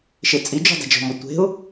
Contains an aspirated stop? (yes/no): no